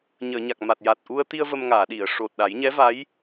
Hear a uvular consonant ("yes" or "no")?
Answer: no